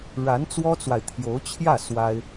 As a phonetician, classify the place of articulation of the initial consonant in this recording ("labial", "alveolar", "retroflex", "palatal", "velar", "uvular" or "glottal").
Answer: retroflex